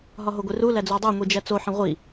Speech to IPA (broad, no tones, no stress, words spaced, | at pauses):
ɦɒɦoɡʷeru læd͡zodˤo ŋʷid͡ʒæt͡so ħẽʁʷi